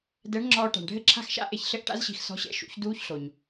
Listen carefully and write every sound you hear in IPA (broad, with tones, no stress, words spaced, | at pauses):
dɛ˨˥ɳ ŋ͡ǁɔː˧ʈa̤˩ɳ ɖʱɘ˦˥ǁʰa̤˦˥xʃa̰˦˥ʔe˧ç ɬɘ˦˥ʔʈa̰˦˥zɕi̤˧x sɔ̤˨˥ɕɛ̰˨˥ ʃṵ˨˥çduː˦˥çɬo˩ɲ